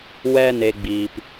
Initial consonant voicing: voiced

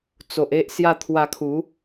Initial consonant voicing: voiceless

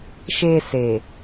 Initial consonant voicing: voiceless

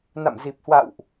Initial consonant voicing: voiced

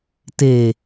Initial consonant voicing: voiceless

